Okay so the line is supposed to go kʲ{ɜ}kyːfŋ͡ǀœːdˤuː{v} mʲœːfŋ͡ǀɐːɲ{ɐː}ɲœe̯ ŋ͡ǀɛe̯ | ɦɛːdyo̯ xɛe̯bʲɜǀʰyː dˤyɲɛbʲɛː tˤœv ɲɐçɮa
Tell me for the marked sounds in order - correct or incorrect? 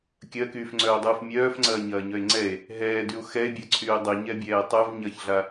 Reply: correct, incorrect, correct

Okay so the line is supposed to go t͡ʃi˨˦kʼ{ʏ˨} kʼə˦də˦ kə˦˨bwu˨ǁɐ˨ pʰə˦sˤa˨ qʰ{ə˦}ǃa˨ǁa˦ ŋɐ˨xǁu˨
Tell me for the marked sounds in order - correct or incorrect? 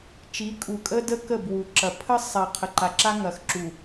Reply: incorrect, incorrect

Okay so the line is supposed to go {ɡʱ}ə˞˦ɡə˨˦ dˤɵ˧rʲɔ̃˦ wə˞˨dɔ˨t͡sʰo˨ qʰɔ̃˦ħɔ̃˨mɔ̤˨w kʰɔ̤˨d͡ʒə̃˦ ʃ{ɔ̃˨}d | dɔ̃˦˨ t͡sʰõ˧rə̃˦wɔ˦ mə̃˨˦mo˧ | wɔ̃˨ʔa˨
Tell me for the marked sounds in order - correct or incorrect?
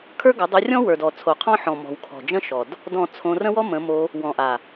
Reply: incorrect, incorrect

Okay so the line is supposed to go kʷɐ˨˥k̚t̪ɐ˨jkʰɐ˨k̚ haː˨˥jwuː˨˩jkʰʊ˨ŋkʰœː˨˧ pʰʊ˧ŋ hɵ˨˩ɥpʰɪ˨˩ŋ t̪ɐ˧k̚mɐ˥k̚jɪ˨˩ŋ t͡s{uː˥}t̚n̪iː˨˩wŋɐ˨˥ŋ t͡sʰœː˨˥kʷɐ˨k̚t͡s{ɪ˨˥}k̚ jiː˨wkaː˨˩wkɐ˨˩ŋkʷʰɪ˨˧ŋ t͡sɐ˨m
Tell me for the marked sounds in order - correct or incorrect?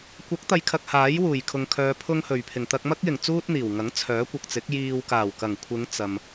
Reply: correct, correct

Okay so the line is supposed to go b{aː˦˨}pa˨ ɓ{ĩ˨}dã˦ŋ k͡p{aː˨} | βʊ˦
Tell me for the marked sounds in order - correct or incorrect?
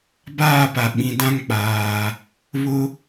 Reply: correct, correct, correct

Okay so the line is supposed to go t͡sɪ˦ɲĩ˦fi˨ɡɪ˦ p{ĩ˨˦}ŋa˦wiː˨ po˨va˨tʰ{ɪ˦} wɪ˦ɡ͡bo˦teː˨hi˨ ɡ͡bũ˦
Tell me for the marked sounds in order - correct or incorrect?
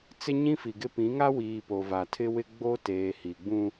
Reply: correct, correct

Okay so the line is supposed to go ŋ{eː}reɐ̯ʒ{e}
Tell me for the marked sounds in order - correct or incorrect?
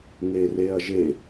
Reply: incorrect, correct

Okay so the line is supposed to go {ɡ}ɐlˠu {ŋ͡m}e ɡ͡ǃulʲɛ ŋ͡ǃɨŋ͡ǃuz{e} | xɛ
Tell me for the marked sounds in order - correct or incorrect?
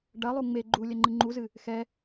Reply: incorrect, correct, incorrect

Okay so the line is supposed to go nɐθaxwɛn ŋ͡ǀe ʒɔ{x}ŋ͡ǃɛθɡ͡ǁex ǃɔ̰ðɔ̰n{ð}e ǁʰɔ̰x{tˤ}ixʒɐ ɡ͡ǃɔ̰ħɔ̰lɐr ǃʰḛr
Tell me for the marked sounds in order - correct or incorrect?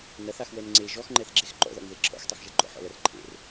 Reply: correct, correct, correct

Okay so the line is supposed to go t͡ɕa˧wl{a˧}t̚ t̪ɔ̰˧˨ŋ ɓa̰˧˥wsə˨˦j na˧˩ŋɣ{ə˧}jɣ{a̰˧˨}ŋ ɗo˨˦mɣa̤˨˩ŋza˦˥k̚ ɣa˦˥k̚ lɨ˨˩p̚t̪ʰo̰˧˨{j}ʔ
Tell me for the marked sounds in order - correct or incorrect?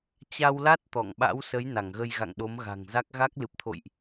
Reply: incorrect, correct, correct, correct

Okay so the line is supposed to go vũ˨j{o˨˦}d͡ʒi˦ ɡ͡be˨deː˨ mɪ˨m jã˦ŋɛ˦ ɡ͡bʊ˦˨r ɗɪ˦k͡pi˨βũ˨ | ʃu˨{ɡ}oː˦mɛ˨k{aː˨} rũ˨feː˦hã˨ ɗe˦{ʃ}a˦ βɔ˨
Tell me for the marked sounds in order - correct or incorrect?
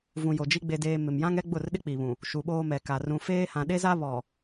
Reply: incorrect, incorrect, incorrect, incorrect

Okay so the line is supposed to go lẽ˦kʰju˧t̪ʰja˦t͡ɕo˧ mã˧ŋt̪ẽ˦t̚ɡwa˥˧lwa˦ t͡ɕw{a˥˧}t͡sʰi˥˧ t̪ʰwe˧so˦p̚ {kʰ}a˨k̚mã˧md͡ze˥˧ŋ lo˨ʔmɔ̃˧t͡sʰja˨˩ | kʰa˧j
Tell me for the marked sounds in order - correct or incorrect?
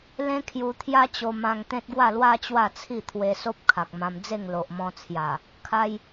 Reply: correct, correct

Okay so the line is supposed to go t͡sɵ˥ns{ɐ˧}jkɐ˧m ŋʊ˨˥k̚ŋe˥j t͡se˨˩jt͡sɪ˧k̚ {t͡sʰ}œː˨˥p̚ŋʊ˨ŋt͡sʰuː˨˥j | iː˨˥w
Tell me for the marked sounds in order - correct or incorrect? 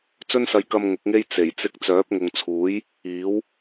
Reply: correct, incorrect

